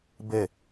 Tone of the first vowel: falling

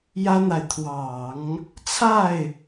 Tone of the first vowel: high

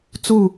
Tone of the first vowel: falling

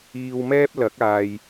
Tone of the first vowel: low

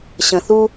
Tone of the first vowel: low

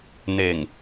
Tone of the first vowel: low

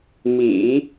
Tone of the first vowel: low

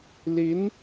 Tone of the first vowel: rising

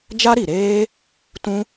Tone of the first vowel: high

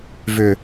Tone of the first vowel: low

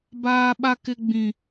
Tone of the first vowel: high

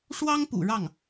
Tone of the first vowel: high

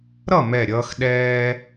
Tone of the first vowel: falling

